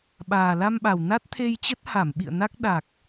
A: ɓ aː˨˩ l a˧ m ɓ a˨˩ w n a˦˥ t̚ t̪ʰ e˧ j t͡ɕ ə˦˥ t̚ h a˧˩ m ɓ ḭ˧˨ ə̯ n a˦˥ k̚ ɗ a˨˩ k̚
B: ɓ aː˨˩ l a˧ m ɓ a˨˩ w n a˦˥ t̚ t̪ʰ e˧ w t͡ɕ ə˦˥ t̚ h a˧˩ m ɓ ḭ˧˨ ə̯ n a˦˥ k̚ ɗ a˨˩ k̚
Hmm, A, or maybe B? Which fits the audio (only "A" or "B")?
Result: A